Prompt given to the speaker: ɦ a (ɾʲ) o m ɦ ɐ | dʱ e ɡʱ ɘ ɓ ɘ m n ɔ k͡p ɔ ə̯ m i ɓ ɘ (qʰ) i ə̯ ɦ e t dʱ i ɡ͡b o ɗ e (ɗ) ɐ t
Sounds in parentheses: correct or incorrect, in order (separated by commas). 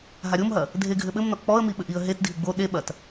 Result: correct, incorrect, incorrect